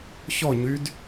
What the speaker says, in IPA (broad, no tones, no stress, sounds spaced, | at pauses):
ç ɔ ɲ y d